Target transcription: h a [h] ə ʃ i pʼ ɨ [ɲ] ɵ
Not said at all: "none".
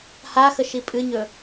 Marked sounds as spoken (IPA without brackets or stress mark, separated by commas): x, ɲ